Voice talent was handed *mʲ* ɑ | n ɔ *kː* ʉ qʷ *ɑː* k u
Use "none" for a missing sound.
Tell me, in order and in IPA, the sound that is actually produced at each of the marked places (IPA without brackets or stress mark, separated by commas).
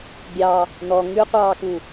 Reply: bʲ, ŋ, ɑː